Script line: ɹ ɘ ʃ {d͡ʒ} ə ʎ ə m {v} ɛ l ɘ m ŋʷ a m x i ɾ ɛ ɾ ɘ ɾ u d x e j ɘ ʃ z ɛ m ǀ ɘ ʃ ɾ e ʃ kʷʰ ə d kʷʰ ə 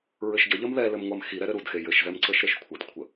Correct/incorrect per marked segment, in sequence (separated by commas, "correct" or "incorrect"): incorrect, incorrect